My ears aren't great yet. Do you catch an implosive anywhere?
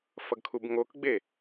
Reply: no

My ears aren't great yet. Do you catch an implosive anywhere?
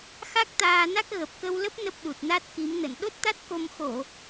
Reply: yes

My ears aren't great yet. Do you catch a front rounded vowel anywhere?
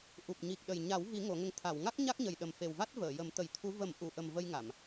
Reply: no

